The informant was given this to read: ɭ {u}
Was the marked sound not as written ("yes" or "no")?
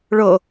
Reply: yes